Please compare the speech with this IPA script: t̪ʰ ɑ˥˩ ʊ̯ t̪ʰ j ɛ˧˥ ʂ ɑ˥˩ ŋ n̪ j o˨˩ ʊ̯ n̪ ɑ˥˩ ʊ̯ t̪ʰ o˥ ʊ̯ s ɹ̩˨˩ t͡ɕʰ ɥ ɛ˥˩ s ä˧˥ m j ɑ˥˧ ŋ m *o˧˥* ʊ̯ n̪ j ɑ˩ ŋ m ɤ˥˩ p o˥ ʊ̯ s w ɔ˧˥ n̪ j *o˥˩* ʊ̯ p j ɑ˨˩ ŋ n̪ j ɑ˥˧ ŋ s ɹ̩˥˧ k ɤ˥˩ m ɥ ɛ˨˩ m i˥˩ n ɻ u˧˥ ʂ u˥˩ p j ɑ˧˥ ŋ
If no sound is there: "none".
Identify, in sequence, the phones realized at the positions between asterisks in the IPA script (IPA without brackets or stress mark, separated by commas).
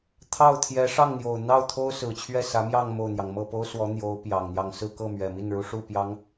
o˥˩, o˧˥